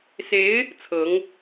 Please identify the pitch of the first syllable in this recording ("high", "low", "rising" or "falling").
rising